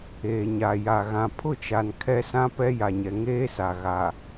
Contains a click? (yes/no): no